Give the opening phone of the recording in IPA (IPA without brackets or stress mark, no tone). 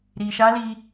ɾ